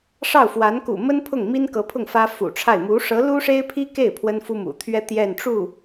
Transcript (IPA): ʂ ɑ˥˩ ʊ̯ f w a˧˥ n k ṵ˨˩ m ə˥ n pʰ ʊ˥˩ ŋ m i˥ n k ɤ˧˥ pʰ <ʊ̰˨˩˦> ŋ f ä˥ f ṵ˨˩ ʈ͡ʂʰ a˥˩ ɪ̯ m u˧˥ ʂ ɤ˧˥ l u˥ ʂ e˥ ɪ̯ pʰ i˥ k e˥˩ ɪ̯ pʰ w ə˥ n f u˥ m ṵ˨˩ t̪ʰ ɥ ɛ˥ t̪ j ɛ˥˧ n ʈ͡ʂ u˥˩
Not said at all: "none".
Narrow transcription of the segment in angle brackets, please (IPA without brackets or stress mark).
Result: ʊ˥˩